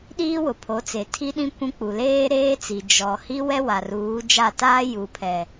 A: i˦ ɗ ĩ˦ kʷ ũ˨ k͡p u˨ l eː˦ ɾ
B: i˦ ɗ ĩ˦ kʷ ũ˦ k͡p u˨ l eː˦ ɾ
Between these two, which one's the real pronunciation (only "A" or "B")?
B